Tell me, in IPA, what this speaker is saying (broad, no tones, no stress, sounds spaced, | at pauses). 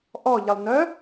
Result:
ʔ ɔ ʎ ə lˠ n œ